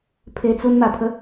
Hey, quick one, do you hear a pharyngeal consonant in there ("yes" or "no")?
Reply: no